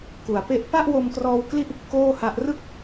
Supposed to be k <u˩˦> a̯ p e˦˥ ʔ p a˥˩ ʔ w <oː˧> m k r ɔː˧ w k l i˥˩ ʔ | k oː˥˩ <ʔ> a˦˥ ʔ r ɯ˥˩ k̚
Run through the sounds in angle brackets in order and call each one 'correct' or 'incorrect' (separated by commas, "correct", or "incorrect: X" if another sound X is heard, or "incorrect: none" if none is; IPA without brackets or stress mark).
correct, incorrect: o˧, incorrect: h